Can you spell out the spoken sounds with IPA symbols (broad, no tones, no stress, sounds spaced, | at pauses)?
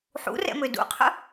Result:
ħ ṵ r ɛ̰ m ø d ṵ qʰ ə̰